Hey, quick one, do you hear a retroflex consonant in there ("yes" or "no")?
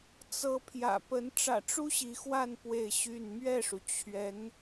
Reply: yes